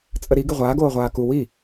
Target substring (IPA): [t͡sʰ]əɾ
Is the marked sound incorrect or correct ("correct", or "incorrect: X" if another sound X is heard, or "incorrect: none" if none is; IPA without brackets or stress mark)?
incorrect: t͡sʼ